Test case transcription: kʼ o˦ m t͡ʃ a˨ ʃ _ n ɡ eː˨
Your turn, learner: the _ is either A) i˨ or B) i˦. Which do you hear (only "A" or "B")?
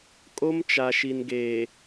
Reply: A